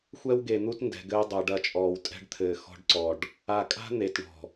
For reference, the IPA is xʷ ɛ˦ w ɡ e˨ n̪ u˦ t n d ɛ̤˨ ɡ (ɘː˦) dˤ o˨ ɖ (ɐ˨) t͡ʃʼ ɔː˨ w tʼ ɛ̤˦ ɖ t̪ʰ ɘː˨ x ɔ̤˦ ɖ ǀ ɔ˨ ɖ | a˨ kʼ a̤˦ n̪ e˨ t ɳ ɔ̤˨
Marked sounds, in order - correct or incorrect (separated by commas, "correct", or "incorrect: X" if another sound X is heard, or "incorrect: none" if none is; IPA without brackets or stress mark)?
correct, incorrect: ɐ˦